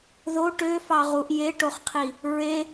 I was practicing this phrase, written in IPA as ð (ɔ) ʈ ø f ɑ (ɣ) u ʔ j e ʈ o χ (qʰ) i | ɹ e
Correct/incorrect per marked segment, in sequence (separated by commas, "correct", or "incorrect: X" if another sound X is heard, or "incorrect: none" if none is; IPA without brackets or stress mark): incorrect: o, incorrect: ʁ, correct